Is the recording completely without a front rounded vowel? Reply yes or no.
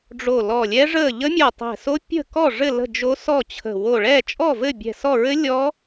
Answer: yes